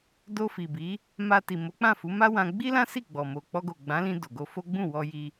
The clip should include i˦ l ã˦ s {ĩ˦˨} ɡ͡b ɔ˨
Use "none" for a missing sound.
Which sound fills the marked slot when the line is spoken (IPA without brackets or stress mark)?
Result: i˦˨